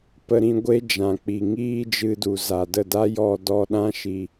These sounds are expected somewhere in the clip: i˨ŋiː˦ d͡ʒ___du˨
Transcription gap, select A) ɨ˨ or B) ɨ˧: B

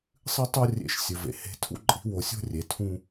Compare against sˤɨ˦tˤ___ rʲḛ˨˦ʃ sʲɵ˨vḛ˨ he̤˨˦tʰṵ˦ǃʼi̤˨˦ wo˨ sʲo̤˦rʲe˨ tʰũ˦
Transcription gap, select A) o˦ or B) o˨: A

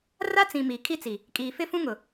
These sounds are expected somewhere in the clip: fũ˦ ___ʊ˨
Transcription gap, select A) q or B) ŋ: B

